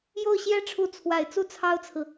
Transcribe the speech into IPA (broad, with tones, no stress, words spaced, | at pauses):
jo˥˩ʊ̯ɕjɛ˥ʈ͡ʂʰu˧˥ t͡sʰwa˨˩ɪ̯ t͡su˥˩t͡sʰɑ˥ʊ̯t͡sʰɹ̩˨